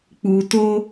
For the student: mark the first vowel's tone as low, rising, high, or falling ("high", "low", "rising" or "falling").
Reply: low